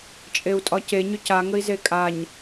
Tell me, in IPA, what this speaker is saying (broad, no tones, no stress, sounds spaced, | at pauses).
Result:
t͡ʃʼ e u̯ tʼ ɒ c e ɲ ʏ c a ŋ ə i̯ z e kʼ a ɲ